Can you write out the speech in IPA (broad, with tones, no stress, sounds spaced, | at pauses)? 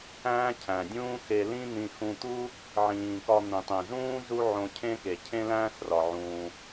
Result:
æ̃ː˥ cʰ æ̃˩ dʲ ũː˥ x e˧ l ĩ˥ n̪ ĩ˧ x ũ˧ t̪ u˥ | ʕ ĩː˩ k ɒ˧ n̪ ĩ˩ tˤ ĩ˩ z ũː˥ z u˥ ʕ õ˧ cʰ ẽ˥ k e˩ cʰ ẽ˥ l æ̃ː˥ s r ɒ˩ ʕ ũː˩